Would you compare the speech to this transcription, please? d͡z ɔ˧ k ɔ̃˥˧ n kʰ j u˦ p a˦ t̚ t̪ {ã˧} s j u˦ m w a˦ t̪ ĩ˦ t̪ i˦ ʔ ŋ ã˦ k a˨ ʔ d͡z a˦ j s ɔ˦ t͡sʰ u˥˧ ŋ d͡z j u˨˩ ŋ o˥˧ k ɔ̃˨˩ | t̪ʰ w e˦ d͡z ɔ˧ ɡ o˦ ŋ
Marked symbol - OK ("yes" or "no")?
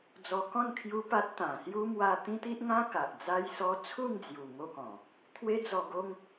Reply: no